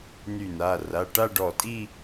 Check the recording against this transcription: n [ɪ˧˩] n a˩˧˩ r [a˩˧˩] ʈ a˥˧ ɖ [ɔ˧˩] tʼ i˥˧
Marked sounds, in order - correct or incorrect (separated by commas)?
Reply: incorrect, correct, correct